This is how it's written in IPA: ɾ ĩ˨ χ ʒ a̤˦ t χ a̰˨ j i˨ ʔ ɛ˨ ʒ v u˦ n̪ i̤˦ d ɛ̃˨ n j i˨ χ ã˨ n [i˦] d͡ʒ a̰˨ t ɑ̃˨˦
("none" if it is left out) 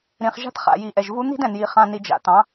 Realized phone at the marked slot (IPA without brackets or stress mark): i˨